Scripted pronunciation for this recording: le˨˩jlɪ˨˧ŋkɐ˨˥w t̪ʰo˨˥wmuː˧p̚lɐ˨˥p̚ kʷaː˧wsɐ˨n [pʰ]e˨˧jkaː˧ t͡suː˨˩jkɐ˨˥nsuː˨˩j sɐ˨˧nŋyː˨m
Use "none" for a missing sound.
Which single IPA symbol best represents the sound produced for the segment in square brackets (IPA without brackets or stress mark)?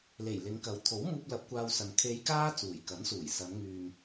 kʰ